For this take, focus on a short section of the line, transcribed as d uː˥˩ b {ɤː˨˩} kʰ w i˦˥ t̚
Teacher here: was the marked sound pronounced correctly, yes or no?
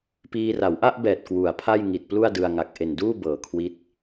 yes